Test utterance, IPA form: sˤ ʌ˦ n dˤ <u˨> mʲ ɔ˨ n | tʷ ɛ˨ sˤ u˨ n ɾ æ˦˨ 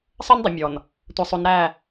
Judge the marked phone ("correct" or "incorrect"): incorrect